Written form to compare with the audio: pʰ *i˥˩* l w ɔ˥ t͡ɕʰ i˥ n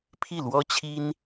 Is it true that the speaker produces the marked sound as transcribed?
yes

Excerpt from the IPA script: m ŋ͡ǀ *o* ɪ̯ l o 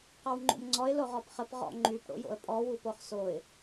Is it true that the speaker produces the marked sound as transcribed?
no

